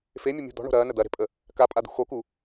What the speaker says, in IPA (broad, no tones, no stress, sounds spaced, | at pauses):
f e mʲ ə mʲ ṳ d̪ ɔ̤ ɳ o̤ ɾ ɐː n ə d̪ ɐ ɾ e̤ pʼ ə | k a pʼ a d̪ ṳ x o k u